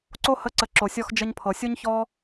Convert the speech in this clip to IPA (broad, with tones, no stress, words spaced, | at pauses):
ǀo˧hə˨˦ǀə˨ ǁo˨sʲɔ˧xd͡ʒə˧ɲpʰɤ˨ sʲo˦ɲçɔ˦